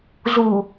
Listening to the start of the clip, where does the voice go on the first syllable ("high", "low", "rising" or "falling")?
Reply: low